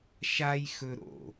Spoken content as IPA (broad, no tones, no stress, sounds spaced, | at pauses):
ʃ a j x ɵ ɾ o̰